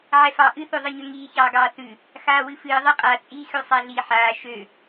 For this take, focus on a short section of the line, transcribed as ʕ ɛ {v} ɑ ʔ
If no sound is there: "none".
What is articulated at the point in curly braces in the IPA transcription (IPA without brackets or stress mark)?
f